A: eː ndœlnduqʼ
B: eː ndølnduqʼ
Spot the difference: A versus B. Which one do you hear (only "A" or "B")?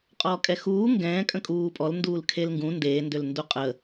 B